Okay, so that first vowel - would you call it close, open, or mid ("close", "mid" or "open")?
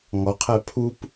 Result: mid